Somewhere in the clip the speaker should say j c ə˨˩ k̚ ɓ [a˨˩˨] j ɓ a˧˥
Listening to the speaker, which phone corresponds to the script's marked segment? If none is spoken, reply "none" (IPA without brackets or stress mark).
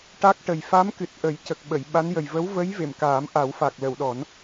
ə˨˩˨